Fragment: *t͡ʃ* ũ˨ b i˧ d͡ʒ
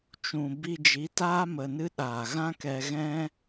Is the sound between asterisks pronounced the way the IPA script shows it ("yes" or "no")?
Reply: yes